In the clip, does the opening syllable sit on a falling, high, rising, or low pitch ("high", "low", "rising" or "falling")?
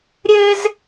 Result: high